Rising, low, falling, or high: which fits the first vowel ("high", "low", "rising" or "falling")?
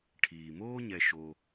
low